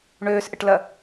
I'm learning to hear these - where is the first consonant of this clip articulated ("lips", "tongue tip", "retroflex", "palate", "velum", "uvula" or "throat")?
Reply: retroflex